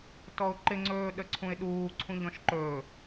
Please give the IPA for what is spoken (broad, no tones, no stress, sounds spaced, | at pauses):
t ɔ ʊ̯ ǃ ɪ ŋ͡ǀ ɵː ɗ ə ǀʰ ũ ɪ̯ ɗ uː ǀʰ ũ ʎ ɔ̃ ʃ ǃ ɵː